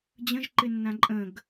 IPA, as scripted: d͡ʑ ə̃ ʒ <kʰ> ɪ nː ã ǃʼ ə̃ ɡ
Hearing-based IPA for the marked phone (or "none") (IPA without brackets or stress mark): ǃ